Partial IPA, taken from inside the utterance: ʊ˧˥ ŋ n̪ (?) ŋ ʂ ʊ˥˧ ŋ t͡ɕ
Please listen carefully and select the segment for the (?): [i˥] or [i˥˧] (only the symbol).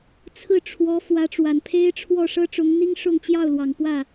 i˥